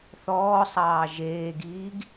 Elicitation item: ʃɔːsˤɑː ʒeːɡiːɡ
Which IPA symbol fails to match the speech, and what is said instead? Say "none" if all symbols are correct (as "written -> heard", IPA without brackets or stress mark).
ʃ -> θ